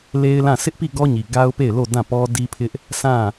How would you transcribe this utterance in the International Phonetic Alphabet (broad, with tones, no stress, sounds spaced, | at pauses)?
l e˦ ɪ̯ l ã˦˨ s ɪ˦ ʔ p i˦˨ ɡ ɔ˦ ɲ i˨ ɡ a˦ ʊ̯ p e˦˨ ɪ̯ l o˦˨ d ã˦˨ p ɔ˦ d i˦ pʰ ɪ˦ ʔ | sʰ ã˦˨